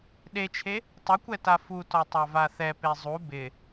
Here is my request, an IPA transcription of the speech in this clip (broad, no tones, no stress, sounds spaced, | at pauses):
ɗ e t͡ʃʰ e | tˤ ʊ kʷ ɛ t a f u t ɔ tˤ a v a θ ɛ p e zˤ u b ɪ